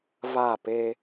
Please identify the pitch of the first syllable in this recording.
falling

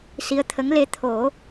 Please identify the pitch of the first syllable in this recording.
rising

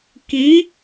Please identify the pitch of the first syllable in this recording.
rising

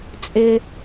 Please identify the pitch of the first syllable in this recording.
low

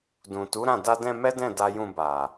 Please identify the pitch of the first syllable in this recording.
low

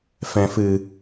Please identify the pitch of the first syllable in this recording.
low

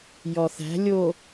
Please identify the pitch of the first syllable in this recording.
low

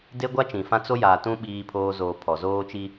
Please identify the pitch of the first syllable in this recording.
high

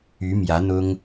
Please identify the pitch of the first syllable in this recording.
rising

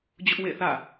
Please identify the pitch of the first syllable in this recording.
high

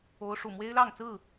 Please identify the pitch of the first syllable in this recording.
high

